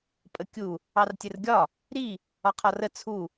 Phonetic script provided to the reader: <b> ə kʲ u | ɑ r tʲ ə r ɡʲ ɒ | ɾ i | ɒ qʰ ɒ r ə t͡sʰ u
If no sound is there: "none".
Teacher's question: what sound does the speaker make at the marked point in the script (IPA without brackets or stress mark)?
pʼ